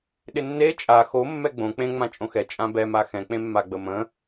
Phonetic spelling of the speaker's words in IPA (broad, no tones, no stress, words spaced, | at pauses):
ɗɪnːe t͡ʃʼa xo mːɛɡ͡bõ k͡pẽ ŋ͡mãt͡ʃʼõxɛ t͡ʃʼãbɛ maxɛ̃ k͡pẽmːaɡ͡bəmə̃